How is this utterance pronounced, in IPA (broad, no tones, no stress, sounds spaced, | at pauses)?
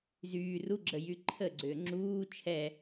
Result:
z yː r u ɡ͡ǁ ə j y ǃʰ ə ɡ͡ǀ ʏː ŋ͡ǁ uː t͡ʃʰ ɛ